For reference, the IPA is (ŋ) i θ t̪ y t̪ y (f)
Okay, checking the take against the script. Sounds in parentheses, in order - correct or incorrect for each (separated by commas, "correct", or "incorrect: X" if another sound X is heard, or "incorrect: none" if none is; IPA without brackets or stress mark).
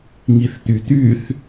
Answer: correct, incorrect: θ